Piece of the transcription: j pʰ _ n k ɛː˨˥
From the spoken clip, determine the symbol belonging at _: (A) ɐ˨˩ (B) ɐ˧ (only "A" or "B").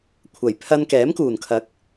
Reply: B